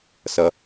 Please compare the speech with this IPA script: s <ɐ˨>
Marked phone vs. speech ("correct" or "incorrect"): correct